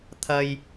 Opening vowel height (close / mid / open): open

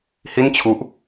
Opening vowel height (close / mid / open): close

